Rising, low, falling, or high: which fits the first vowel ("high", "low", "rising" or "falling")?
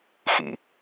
low